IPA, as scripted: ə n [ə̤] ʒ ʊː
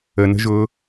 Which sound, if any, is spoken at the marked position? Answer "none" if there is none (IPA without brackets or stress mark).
ə̤